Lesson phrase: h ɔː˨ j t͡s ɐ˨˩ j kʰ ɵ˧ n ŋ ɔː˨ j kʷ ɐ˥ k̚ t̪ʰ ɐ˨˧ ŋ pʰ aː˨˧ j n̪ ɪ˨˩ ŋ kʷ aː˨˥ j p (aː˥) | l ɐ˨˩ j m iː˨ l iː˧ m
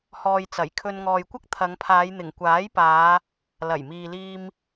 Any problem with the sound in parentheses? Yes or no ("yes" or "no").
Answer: yes